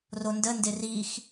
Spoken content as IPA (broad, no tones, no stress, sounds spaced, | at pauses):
r o n d ə n d ɪ r i x